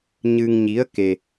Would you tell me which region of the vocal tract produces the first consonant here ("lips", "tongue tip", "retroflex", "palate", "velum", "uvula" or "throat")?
palate